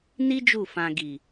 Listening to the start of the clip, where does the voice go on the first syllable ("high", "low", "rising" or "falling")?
high